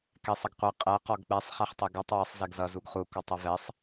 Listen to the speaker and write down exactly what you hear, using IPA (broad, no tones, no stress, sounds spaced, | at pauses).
k ɛ sˤ ʌ ɡ qʷ ɛ qʼ ɛ q ɔ ɡ k͡p ɛ sˤ χ ɛ χ tˤ ɛ ɡ ɔ tˤ w ʌ sˤ z ɛ ɡ z ʌ z u ɡ χ u k ɔ tˤ ʌ v ɛ sˤ